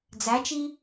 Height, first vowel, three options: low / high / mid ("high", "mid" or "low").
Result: low